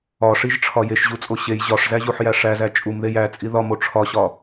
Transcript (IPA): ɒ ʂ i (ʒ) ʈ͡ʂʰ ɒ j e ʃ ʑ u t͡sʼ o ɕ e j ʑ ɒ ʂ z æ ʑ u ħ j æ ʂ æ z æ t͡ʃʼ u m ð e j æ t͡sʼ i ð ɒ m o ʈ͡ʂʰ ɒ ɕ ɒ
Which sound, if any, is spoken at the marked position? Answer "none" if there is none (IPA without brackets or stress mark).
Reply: ʒ